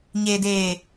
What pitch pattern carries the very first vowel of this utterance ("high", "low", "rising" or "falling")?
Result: low